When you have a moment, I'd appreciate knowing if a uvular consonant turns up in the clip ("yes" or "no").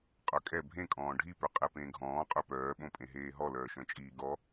yes